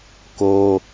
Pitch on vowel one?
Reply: high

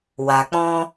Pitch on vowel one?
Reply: low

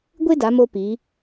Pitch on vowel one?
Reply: high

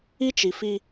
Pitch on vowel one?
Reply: high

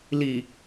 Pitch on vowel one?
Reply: low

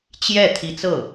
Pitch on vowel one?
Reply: falling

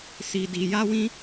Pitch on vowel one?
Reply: low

